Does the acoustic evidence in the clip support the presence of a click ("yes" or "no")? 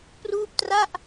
no